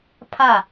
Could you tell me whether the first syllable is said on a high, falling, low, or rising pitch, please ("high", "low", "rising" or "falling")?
falling